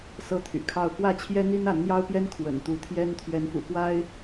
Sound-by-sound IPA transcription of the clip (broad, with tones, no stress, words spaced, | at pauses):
sɤ˦t̪ʰy̰˨˩kʰɑ˥˨ʊ̯ kwä˥˨t͡ɕʰjɛ˦ n̪i˦na˨˦nn̪jɑ˦ʊ̯pjɛ˦n kʰwə̰˨˩nt̪u˨˦ t̪ʰjɛ˦n t̪ʰɥɛ˨˦nfṵ˨˩kwa˦ɪ̯